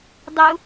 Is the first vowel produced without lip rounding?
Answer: no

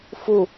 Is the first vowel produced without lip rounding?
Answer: no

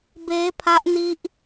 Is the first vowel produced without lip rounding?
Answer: yes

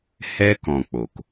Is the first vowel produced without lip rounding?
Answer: yes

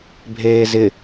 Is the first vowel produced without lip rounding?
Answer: yes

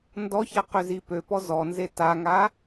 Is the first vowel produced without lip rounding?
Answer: no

